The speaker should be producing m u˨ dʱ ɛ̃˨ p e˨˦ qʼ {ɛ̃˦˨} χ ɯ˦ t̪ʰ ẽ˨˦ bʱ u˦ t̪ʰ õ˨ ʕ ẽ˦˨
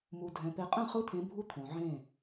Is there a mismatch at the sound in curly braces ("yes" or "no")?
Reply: no